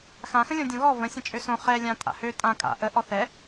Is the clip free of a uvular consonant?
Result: no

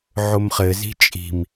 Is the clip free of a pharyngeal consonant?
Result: no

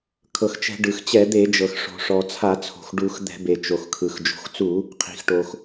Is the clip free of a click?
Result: yes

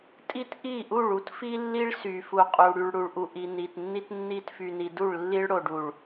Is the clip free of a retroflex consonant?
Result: no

